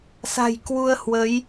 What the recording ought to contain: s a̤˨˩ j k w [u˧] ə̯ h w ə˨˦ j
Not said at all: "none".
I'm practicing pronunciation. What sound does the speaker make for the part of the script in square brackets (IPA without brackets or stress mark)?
u˧